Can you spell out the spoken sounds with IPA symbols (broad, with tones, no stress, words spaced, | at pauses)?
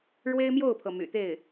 ɻwe˥ɪ̯mjo˥˩ʊ̯pʰɤ˩ my̰˨˩t̪e˥˩ɪ̯